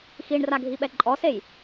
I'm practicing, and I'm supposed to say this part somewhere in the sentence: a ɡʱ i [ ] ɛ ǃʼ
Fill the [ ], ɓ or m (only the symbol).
ɓ